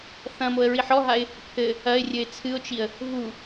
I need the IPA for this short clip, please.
θ ɐ̃ m o ə̯ ɹ i ħ ɔ ɦ a ɪ̯ | pʰ ɘ | ɐ ɪ̯ rʲ ɘ ɪ̯ t͡sʰ ɨ ʊ̯ t͡ʃ i ə̯ | v u

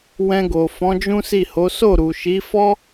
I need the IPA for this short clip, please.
w ɛ̃˧ ɡ o˨ f ɔ̃˨˦ d͡ʒ ũ˦ s i˦˨ h o˨˦ s o˦˨ ɾ u˨ ʃ i˨˦ f ɔ˦

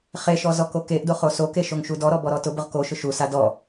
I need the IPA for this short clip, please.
χ e ʃ ɔ z ɔ k o k e ʔ d o χ o s o k e ʃ o ŋ ʃ u d ɔ ɾ ɔ b ɔ ɾ ɔ t ʊ b ʊ ʁ k o ʃ ʊ ʃ u s a d ɔ

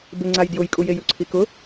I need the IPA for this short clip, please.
b ɪ ŋ͡ǀ a j d j ʊ j kʼ u j e j u ǀʰ i k ʊ

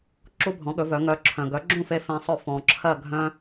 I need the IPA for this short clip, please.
ǁ u˥ bʱ ɔ̃˩˥ ɠ ɵ˩˥ v œ˩˥ ŋ œ˩˥ ǁʰ œ̃˩ ɡ œ˩˥ ɡ͡ǁ ũ˥˩ f e˧ f ẽ˧ sˤ ɵ˥˩ f ɔ̃˩ ǁʰ ɜ˥˩ ɡʱ œ̃˥

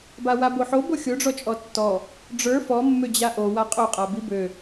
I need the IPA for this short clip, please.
b a w a b o ħ o b o xʲ o ɖ͡ʐ ɔ t͡ʃʼ ɔ tː ɔ | ɖ͡ʐ ə˞ f ɔ mː ø d͡ʑ a ʔ o w a qʼ o qʼ a b i b ø

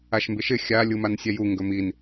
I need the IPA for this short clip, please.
a ʃ m b ɪ ʃ ɪ xʲ a lʲ u m a n sʲ ɛ j u ŋ ɡ ɵ m i n

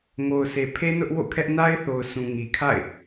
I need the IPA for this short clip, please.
ŋ o˨ ʊ̯ sʰ e˨ pʰ e˦ n ʊ˦ ʔ w o̰˦˨ kʰ ɛ˦ ʔ n a˦ ɪ̯ θ o˨ ʊ̯ s ũ˨ ŋ i˨ kʰ a̰˦˨ ɪ̯

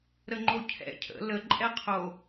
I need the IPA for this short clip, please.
ɾ ə ŋ͡ǃ o cʰ ɛ̰ cʰ ə̰ l ə ǃʼ ɛ qʰ o

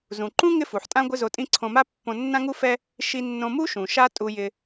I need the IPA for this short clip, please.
z ũ˩ ǃ ũ˥ ŋ ɪ˥ f u˩ ħ tʼ ã˥ ɡʷ ɪ˥ z o˧ tʼ ĩ˥ ǀʰ õ˧ m a˥ pː õ˧ nː ã˥ ŋ u˥ f ɛ˥ | ʃ i˧ nː õ˧ m u˥ ʃ ũ˩ ʃ a˥ tʼ u˧ j ɪ˧

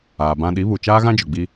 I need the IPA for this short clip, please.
aː˨ b ã˦ ɗ i˨˦ β u˨ t͡ʃ aː˦ ɣ ã˦ d͡ʒ ʊ˨ ɡ͡b i˦

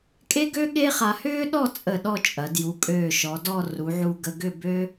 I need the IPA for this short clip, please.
kʼ e˥ ɡ ø˥ ɠ e˥ χ a˧ h ʏː˥ ɗ ɔ˥˧ t͡sʼ ə˧˩ ɗ ɔ˥˧ t͡ʃʼ ɐ˩˧ d j u˩˧ kʼ øː˧˩ ʃ ɔ˩˧ d ɔ˥˧ r u˩˧ ʕ u˧ ɡ ə˧ ɡ ʏ˥˧ b ø˥

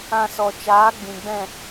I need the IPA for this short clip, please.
ã˧ s ɔ˨ t͡ʃ aː˨˦ ɡ͡b ĩ˨ ɡ͡b ɛ̃˦˨

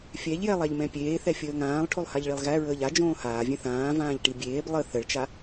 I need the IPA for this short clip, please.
fʲ ɛ ʎ j ɛ lˠ æ ʎ m ɛ̃ pʲ eː θ ɛ fʲ əː ŋ ãː lˠ ʈʰ o lˠ h a ʎ ɭ i lˠ ɣ æ ɹ əː ʎ a d͡ʒ õː h aː vʲ ɛ̃ θ ãː v ãː ʎ ʈ i bʲ eː b lˠ ə θ ə ɭ t͡ʃ a

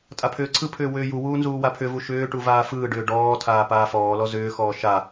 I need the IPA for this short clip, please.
tʼ a pʰ ʏː ǀʰ ɯ pʰ ʏː w ʏː j u w uː n z uː w a pʰ ʏ v u ʃ ʏː ʈ u v aː f ɯː ɖ ʏː ɖ ɔː tʰ aː p aː f ɔː l ɔ z ʏː x ɔː ʃ a

